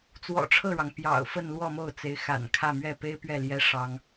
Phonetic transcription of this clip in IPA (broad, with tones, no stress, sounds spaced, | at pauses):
t͡s w ɔ̰˨˩ ʈ͡ʂʰ ɤ˥˩ ɻ ɑ˩ ŋ p j ɑ̰˨˩ ʊ̯ f ə˥˧ n l w ɔ˥˧ m o˥˩ ʊ̯ t͡s e˧˥ ɪ̯ x a̰˨˩ n kʰ ä˥˧ m ɥ ɛ˥˩ p e˥ ɪ̯ p ɥ ɛ˥˩ l j ɛ˥ ʂ ɑ˥ ŋ